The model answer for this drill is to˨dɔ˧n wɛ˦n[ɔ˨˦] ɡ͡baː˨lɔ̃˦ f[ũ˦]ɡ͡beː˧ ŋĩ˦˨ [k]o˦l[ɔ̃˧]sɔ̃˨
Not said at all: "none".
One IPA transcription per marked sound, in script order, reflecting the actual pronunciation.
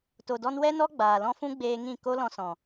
ɔ˦, ũ˦, k, ɔ̃˧

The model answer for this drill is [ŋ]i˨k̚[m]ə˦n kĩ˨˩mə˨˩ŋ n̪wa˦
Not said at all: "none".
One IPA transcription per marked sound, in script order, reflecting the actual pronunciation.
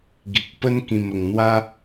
ɡ, p

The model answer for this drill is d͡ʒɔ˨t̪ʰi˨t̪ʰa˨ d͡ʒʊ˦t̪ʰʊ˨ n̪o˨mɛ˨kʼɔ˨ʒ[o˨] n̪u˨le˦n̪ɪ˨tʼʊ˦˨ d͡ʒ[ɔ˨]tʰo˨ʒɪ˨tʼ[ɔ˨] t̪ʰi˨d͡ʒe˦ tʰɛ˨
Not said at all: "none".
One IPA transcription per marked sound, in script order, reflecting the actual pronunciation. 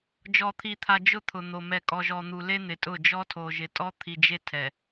ɔ˨, ɔ˦, ɔ˦

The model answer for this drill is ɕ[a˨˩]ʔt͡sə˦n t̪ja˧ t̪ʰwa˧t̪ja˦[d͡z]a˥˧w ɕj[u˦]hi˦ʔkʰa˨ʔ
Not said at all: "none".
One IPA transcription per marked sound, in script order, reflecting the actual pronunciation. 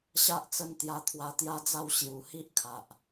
a˦, d͡z, u˨˩

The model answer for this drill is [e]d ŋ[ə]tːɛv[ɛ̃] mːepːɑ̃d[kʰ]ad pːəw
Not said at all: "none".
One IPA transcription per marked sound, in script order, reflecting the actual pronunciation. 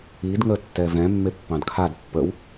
i, ə, ɛ̃, kʰ

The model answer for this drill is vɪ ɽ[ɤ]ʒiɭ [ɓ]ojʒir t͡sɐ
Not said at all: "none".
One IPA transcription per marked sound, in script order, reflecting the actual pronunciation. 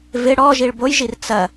ɔ, b

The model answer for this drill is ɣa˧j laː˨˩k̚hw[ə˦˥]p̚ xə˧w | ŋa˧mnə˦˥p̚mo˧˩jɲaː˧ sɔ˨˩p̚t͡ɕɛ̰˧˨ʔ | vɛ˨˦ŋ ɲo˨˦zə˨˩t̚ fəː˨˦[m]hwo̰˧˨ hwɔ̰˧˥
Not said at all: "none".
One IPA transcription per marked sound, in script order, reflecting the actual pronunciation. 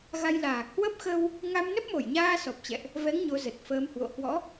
ə˦˥, m

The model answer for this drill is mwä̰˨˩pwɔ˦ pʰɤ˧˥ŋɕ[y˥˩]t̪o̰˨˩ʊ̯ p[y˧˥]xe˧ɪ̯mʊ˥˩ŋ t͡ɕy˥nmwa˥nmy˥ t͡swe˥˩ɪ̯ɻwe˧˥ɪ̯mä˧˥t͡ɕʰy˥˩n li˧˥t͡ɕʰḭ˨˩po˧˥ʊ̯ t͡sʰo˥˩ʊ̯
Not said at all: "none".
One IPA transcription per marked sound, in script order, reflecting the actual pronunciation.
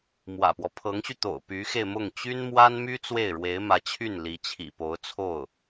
y˧, y˧˥

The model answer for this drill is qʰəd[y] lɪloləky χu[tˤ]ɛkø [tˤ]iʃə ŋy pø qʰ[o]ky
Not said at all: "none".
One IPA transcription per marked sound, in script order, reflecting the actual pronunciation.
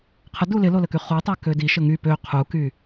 u, tˤ, d, u

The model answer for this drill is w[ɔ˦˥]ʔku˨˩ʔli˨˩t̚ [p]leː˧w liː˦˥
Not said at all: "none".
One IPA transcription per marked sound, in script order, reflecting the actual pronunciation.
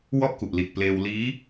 ɔ˥˩, p

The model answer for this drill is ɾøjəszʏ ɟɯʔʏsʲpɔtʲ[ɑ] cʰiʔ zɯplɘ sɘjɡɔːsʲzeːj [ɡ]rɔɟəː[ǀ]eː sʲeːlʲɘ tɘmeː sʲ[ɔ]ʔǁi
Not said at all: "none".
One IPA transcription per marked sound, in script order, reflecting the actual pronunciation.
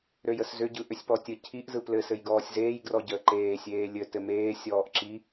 ə, ɡ, ǃ, ɔː

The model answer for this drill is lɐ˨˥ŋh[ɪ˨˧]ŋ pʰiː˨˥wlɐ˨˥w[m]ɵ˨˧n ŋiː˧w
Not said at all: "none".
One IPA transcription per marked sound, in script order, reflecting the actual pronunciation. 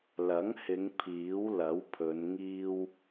ɪ˨˧, pʰ

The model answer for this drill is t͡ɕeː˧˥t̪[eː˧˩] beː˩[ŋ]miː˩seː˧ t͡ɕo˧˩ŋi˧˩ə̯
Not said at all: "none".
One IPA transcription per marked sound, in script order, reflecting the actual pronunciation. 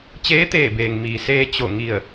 eː˧˩, ŋ

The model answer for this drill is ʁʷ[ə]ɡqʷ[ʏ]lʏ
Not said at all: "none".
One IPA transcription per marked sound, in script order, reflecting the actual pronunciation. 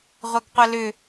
ɐ, ə

